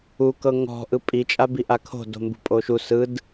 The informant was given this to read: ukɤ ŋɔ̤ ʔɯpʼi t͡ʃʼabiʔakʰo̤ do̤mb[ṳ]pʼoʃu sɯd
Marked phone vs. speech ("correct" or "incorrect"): correct